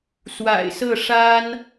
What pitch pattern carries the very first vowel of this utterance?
low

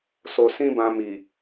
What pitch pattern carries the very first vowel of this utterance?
low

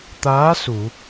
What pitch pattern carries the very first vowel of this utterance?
rising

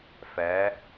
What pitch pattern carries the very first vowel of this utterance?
rising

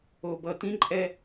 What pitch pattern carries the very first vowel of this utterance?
low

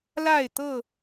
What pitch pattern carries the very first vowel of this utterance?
falling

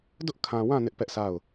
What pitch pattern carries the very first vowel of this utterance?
high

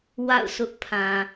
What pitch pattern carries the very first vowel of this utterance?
falling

